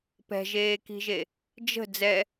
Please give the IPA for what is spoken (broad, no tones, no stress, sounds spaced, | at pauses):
p ɛ̤ ʒ eː k i̤ ʒ e | d͡ʒ ə̤ d͡z ɛ